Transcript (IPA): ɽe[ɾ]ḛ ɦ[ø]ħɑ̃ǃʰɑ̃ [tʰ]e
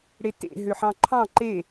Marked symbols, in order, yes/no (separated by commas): no, yes, no